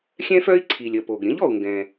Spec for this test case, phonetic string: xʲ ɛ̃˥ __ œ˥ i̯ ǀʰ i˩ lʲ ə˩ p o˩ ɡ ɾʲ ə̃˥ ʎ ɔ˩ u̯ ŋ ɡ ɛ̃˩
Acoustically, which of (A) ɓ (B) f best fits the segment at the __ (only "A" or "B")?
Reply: B